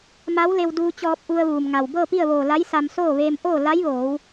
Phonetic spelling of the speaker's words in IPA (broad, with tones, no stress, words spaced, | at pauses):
ma˧˥wle˧wduː˧t͡ɕɔː˧p̚ ʔu˧ə̯ʋuː˩mŋa˩w bɤː˥˨pi˥˨ə̯ʋoː˧˩ la˧˥jsa˧m soː˥˨ʋeː˧m ʔoː˥˨ la˧˥jʋoː˩˧w